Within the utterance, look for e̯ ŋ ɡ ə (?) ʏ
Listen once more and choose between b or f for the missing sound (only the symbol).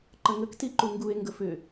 f